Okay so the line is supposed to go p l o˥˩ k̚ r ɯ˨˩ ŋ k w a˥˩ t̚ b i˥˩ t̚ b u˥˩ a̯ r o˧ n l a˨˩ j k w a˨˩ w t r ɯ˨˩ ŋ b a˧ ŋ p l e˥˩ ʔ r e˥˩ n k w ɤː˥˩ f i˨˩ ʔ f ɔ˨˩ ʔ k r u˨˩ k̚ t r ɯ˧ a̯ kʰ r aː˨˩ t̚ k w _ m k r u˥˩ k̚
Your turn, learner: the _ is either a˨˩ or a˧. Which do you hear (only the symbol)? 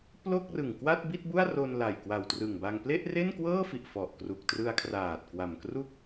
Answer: a˨˩